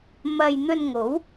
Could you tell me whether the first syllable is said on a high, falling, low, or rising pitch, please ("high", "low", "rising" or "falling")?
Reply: low